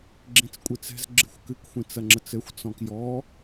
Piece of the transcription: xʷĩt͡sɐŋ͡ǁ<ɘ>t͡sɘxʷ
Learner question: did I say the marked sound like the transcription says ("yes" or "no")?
yes